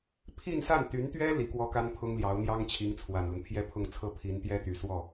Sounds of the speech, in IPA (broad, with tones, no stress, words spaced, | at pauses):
pʰi˥˧nsa˥˩nt̪y˧˥nt̪ɥɛ˥ li˧˥kwɔ˥ka˥n pʰʊ˥ŋljɑ˧˥ʊ̯ n̪jɑ˥ŋt͡ɕʰi˧˥ŋt͡sʰwa˨˩nlə˦n pʰjɛ˥pʰʊ˥˧ŋt͡sʰɤ˥˩ pʰi˧˥nt̪jɛ˥t̪y˨˩ swɔ˥˩